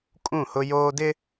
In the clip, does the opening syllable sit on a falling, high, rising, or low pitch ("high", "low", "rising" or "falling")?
falling